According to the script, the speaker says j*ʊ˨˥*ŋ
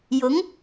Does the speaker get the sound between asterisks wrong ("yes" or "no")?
no